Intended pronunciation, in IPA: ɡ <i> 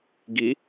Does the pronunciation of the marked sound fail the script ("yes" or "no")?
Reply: no